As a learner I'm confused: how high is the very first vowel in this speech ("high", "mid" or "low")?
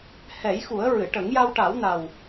mid